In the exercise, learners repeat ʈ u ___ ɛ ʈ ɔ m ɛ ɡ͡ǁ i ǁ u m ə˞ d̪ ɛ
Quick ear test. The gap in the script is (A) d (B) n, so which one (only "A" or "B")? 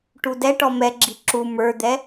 A